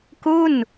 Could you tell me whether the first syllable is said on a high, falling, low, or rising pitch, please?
falling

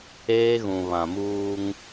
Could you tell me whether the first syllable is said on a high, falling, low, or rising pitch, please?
high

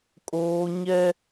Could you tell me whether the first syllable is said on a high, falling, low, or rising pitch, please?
high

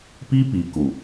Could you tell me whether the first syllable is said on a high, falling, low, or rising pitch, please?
high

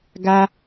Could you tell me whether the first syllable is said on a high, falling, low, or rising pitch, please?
high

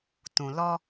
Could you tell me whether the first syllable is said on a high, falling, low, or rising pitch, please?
low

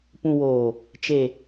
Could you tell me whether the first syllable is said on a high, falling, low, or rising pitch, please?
low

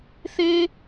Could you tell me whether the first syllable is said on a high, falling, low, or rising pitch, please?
high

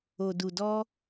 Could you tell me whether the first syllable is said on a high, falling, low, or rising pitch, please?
low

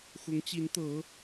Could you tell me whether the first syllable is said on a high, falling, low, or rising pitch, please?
rising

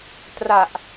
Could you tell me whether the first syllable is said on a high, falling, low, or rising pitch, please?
low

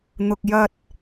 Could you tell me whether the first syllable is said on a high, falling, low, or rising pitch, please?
low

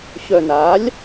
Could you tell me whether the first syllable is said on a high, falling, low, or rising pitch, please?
low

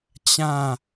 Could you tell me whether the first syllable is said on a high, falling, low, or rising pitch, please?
falling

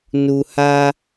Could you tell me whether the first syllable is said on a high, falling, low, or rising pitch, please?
low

